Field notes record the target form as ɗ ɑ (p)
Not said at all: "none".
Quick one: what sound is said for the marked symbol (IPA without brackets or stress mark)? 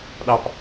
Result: p